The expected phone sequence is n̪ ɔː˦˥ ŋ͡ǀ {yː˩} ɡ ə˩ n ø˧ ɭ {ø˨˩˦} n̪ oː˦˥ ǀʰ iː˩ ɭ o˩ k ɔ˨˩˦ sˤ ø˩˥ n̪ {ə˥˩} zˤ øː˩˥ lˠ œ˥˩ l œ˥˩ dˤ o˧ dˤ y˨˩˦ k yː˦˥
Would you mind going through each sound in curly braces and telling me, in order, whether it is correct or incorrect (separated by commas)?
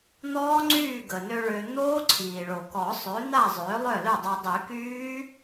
incorrect, incorrect, incorrect